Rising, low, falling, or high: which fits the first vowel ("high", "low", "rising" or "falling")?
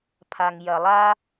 low